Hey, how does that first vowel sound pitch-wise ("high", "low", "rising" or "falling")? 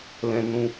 high